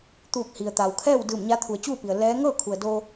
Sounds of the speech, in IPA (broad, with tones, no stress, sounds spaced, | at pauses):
t̪ uː˧˩ k̚ h i˩ ə̯ t̪ a˩ w kʰ ɛː˥˨ w d ɯː˧˩ m ɲ a˧˥ t̪ʰ u˩˧ ə̯ t͡ɕ uː˥˨ p i˩ ə̯ l ɛː˧˥ ŋ ɤː˥˨ kʰ u˩ ə̯ d o˧